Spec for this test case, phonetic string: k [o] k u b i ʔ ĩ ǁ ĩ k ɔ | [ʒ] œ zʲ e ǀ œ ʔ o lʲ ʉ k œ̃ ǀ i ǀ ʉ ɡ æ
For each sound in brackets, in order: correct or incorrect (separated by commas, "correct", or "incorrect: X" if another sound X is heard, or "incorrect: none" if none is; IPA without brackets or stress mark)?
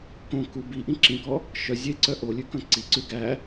incorrect: õ, incorrect: ʃ